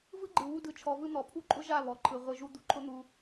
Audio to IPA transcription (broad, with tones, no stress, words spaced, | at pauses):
vɯ˦ɡ͡ǃɯ˨ wu˧dɯ˨t͡ʃʰɔ˨vɯ˧ n̪ɔ˨pʰu˦ǃʼʊ˦ʒa˦˨ βɔ˨˦ǃʰɯ˨ ʁʷɯ˨ʒu˧ d̪u˨ǃʰʊ˦n̪u˧